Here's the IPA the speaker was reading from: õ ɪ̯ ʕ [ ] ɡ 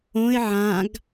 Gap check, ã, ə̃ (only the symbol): ã